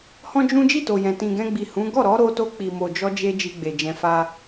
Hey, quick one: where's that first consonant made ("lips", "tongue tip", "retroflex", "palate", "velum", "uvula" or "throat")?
throat